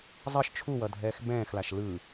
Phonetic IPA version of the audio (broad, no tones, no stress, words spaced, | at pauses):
zˤʌʃ t͡ʃʰuwʌdʱɛːx bɛ̃ːxlaʃ lɯ